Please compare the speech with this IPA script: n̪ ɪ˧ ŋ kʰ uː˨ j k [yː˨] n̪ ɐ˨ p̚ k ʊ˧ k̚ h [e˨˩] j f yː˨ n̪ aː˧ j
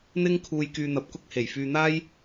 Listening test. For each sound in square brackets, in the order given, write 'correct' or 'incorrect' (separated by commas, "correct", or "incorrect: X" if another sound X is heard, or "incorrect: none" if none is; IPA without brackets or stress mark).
correct, correct